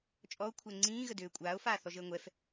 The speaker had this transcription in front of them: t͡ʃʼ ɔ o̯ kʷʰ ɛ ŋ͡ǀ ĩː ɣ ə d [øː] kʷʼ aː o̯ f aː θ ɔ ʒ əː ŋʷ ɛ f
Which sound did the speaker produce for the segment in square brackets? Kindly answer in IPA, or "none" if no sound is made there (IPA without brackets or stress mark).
øː